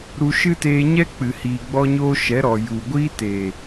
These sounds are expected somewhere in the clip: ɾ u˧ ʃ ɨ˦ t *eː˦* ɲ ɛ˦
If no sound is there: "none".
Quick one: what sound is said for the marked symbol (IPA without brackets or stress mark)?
eː˧